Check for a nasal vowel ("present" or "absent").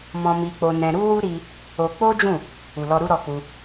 present